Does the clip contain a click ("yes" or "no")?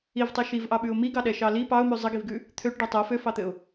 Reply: no